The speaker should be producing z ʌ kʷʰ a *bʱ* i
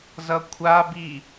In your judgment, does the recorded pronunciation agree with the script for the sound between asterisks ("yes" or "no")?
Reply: no